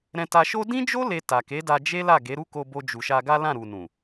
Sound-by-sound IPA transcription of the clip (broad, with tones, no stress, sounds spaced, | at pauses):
ɾ ɛ̃˧ t a˧ ʃ o˦ d ĩ˦ d͡ʒ o˦ l e˧ t a˨ k e˨˦ d a˧ d͡ʒ e˦ l a˦˨ ɡ e˨˦ ɾ u˦ k o˧ b o˧ d͡ʒ u˨ ʃ a˧ ɡ a˦ l ã˦˨ ɾ u˨ n ũ˨